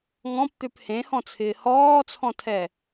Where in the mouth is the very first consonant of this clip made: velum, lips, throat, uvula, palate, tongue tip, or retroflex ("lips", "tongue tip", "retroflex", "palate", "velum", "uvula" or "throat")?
velum